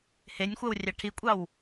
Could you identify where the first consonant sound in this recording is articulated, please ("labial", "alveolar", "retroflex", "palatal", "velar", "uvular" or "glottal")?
glottal